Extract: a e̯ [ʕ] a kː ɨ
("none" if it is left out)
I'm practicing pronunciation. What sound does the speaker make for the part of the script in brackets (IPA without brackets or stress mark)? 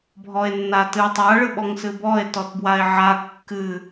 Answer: ʕ